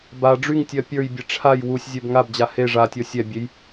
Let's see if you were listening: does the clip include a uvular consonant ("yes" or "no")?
no